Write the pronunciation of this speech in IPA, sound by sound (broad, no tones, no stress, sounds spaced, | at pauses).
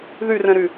ð y r ɛ̃ ɾ y